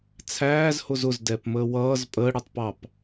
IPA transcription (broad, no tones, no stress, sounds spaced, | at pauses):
t͡sʰ æː z h ʊ z ʊ z d ɛ p m əː w ʌː z pʼ əː ɽ ə˞ tˤ p ɑ p